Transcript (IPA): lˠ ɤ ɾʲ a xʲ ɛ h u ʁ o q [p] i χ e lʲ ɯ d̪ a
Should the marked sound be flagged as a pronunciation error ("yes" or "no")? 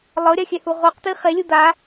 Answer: yes